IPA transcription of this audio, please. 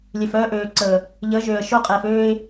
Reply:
lʲ ø˨ f œː˦ ʔ øː˨ ǀ əː˨ | ʎ əː˨˦ ʒ øː˨ ə̯ ʃ o˦ qʼ eː˨ f øː˦ ɪ̯

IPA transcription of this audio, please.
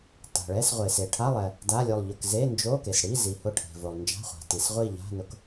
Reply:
t a̤˩ ɭ ɛ˧˥˧ s ʁʷ e˩ s e˩ ʈʰ a˧˥˧ lˠ ɛ˩ | d a˧˥˧ lʲ o˦˨ lˠ ʎ ʊ˦˨ k z e˧˥˧ n d͡ʒ o˧˥˧ k e˩ s ɽ i˧˥˧ z i˩ h ʊ˦˨ ʈʰ e̤˩ v o˩ lˠ n d͡ʒ a̤˧˥˧ χʷ a̤˩ t i˩ s ʁʷ i˦˨ ʎ a̤˧˥˧ n ʊ˦˨ k

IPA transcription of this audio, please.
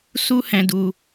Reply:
s u˦ h ɛ̃˧ d u˧

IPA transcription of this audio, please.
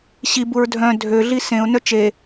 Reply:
ɕ i b u ɹ dʱ œ̃ dʱ ø ɮ i s ẽ ʊ̯ n œ t͡ʃ e

